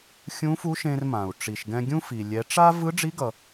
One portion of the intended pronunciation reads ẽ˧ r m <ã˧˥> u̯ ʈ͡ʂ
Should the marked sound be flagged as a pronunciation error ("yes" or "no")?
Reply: yes